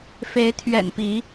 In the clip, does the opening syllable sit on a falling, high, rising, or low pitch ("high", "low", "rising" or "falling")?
rising